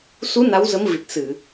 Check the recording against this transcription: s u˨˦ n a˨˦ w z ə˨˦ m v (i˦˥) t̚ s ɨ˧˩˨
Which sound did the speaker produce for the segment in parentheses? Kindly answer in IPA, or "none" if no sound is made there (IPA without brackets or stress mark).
i˨˩